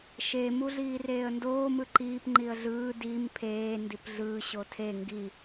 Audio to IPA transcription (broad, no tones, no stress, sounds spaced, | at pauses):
ʃ e m u ɮ iː r eː ə̯ n d oː m ɯ ǃ iː p ŋ͡ǃ i ə̯ ɮ ɯː d iː m pʰ eː n d i p ɮ ɯː ɕ o tʰ e ŋ ɡ i